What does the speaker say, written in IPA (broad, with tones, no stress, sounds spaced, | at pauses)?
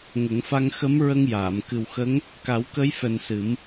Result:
ŋ ə˨˩˦ ŋ f a˧ ŋ x ə˧˥ m ɹ ə˧ ŋ j aː˨˩˨ m k ɨ˨˩ w x ə˧˥ ŋ | k a˨˩˦ w k ə˧˥ j f ɛ˨˩ n s ɨ˨˩˦ m